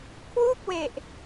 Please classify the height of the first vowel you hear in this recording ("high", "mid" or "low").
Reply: high